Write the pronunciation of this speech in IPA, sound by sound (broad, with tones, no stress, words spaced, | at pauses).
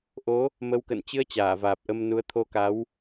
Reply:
ʔo˨˦ | mə˧wkə̰˧˨n t͡ɕɨ˧ə̯ t͡ɕaː˧˩vaː˨˩p̚ ʔə˧mnu˨˦ə̯ t̪ʰo˧ka˨˦w